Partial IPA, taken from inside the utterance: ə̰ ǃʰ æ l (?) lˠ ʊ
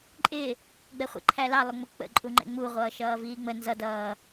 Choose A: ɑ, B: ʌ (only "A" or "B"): A